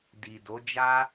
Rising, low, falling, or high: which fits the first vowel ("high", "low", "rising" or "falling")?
low